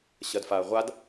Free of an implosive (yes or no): yes